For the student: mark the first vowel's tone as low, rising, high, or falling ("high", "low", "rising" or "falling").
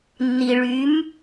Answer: low